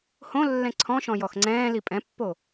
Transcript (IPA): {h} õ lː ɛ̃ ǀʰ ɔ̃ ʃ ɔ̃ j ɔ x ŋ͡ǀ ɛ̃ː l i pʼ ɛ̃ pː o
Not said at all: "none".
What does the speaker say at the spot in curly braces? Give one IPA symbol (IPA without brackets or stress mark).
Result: h